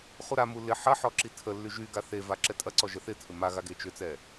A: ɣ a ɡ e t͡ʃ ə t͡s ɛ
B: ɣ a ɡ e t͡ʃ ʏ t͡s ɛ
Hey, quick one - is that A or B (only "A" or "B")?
B